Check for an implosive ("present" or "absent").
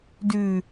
absent